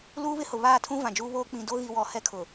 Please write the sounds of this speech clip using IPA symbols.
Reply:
l uː˦ β ɪ˦ h ʊ˨ β aː˦˨ tʰ ũ˦ v ã˨ d͡ʒ uː˦ β oː˦ k͡p ĩ˨ d o˦ ɣ i˨ w ɔ˨ h ɛ˦ kʰ ʊ˨

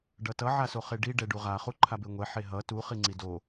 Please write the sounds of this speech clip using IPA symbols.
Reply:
ɖ ʌ t ʌ ʕ a s o χ e ɖ i ɖ ɛ ɖ u ʁ a χ u ǃʰ a b e ŋʷ ɛ ħ e ɦ ʌ t u χ i ŋ͡ǀ i d o

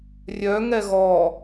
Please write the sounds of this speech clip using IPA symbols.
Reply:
rʲ œ ŋ ɛ ɣ ɔ

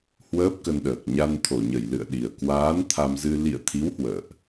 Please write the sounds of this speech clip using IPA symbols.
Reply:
h w əː˦˥ p̚ k ə˧ n ɗ əː˨˩ k̚ ɲ a˧ n t̪ʰ o˧˩ ɲ ə˧˩ j l ɨ̰˧˨ ə̯ ɗ i˨˩ ə̯ k w aː˨˦ n t̪ʰ a˧ m z ɨ˧ l ḭ˧˨ ə̯ t̪ʰ i˨˦ w h w ə̰ː˧˨ ʔ

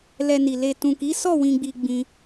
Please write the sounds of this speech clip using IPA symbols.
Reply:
l ɛ˧ n i˨ l e˨ t ũ˨ k i˨˦ s ɔ˦˨ w ĩ˨ ɡ͡b i˨ ɡ͡b ĩ˧

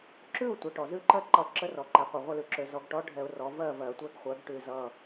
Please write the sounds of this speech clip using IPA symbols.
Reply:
ǁ ʉ˥˨ ʊ̯ tʷ ɜ˩ ʈ ɔ˩ z ʉ˥˨ ǃ ɜ˥˨ ǃ ʌ˧˩ ǁ ə˧˥ r ɔ˩ ǃ ɛ˩˧ qʷ ʌ˩ ʁʷ ə˥˨ l ʉ˩˧ ǁ ø˩˧ z ɔ˩˧ ɡ ʈ ɔ˧˥ ɖʱ ɛ˧˩˧ ʊ̯ r ɔ˩˧ v ɜ˥˨ v ɜ˧˩˧ tʷ ɛ˧˥ ɡ χʷ ɜ˩˧ ɡ ʈ ʉ˧˩ z ʌ˧˩

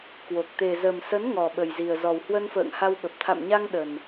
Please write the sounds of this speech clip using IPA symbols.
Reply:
k w o˨˩ k̚ t̪ e˨˩ z ə˨˩ m s ə˨˦ n ŋ ɔ˨˩ ɓ ə˨˩ j z i˨˩ ə̯ z ɔ˨˩ w h w ə˧ n f ə̰ː˧˨ ŋ h a˧ w ɓ ə˨˩ p̚ t̪ʰ a̰˧˨ m ɲ a˧ ŋ ɗ ə˨˩ n

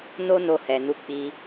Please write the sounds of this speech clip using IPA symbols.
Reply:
n o˦ n o˧ h ɛ˨ n u˨˦ k͡p i˧

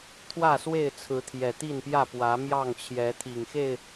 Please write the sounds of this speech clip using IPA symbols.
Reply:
t̪ʰ w ä˥˨ s w e˥˨ ɪ̯ t͡sʰ ɹ̩˨˦ t̪ʰ j ɛ˨˩ t̪ i˥˨ n p j ä˥˨ p w ä˨˦ m j ɑ˥˨ ŋ t͡ɕʰ j ɛ˨˦ t̪ʰ i˨˩ ŋ x e˥˨ ɪ̯

